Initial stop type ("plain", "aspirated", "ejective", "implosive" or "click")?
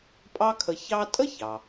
ejective